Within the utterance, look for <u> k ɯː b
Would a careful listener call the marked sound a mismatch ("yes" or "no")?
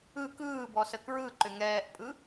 yes